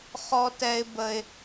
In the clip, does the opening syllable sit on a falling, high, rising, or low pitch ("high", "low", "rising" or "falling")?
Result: high